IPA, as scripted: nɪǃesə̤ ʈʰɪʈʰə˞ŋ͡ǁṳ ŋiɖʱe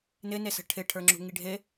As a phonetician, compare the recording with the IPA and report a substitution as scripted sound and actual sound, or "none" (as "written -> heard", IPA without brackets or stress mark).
ǃ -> n